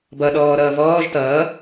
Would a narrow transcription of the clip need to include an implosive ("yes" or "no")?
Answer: yes